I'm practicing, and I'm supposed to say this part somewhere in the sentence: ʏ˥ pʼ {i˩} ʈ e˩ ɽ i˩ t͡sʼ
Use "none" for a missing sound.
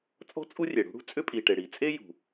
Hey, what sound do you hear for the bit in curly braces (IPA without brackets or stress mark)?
i˩